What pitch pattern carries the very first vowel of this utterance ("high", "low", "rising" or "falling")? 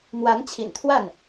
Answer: rising